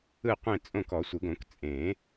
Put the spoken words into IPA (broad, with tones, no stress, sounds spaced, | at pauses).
ɯ˥˨ qʷ ẽ˥˨ t͡sʼ õ˥˨ k ɔ˨˩˦ sʷ ɯ˨˩˦ ɡ õ˨˩˦ k t͡sʼ ẽ˨˩˦